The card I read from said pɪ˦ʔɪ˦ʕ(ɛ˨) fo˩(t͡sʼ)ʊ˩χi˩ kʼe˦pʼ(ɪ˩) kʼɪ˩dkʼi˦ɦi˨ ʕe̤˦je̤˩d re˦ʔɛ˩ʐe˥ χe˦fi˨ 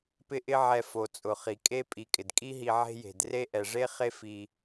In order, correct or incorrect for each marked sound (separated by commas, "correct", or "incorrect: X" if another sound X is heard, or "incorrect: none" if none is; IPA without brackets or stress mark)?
correct, correct, incorrect: i˩